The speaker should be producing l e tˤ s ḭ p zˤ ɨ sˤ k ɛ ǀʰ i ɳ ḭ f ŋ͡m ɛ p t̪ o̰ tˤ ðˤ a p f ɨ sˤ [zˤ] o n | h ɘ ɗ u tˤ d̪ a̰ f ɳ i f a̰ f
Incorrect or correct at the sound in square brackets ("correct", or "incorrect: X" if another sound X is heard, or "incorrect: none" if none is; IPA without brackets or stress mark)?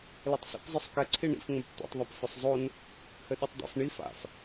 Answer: correct